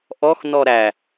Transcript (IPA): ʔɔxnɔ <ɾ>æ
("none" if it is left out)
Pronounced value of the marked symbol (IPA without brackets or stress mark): ɾ